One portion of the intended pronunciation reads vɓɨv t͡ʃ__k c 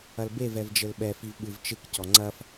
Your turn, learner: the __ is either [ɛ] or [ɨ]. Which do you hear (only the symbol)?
ɨ